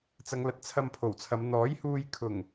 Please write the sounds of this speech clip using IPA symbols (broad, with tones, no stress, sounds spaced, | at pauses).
t͡s ɐ˨˧ ŋ l ɐ˨ t̚ t͡sʰ ɐ˧ m pʰ o˨˩ w t͡sʰ ɐ˨˧ m n̪ ɔː˨˥ j h uː˧ j kʰ ʊ˨˩ ŋ